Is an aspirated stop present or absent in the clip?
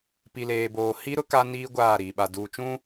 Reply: absent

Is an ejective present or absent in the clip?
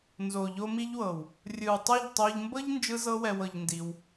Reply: absent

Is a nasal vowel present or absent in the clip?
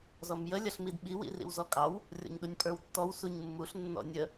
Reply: absent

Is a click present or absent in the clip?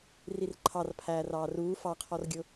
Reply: present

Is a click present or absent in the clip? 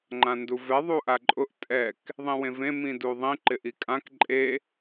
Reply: present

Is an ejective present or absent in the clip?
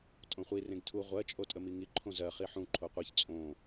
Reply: present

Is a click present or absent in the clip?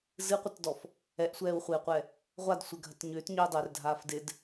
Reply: absent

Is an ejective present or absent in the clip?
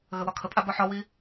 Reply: present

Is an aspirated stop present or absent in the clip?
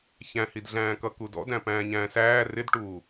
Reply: absent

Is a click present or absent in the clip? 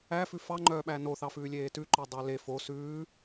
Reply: present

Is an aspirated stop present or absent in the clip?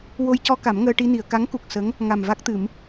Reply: absent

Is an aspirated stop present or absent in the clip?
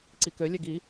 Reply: absent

